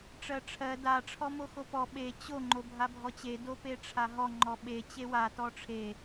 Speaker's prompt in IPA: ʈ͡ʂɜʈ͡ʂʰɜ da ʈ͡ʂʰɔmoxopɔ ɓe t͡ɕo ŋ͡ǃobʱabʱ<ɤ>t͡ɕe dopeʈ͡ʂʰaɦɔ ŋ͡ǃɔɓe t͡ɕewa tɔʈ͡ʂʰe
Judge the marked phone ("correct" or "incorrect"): incorrect